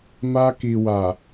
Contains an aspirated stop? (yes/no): no